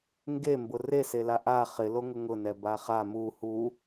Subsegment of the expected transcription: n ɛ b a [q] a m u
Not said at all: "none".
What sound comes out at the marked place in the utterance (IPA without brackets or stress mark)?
χ